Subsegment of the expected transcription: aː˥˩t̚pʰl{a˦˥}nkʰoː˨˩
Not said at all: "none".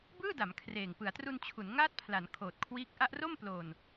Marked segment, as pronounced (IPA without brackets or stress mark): a˩˦